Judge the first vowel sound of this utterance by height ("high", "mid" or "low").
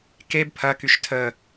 mid